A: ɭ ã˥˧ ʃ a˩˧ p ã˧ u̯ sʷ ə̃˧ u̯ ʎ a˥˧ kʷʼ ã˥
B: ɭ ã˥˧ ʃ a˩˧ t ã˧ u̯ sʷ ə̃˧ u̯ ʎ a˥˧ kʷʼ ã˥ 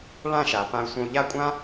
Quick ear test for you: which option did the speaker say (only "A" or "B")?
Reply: A